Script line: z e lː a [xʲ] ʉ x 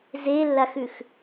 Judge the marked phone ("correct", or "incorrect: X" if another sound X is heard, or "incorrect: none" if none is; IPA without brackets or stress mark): incorrect: x